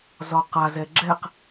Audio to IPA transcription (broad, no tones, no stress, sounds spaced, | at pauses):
z ɒ q a z ɛ ɡ͡ǁ ɛ q